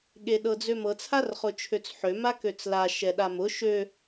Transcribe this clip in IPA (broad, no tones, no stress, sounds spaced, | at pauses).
ɠ e ɗ ɤ d͡z ø m ɤ t͡sʰ a r χ ʊ t͡ʃʰ ø t͡s ħ ø m a k ø t͡s l a ʃ ɛ ɗ a m ʊ ʃ ø